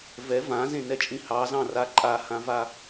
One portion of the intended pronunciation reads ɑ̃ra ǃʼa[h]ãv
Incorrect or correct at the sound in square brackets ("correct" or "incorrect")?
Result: correct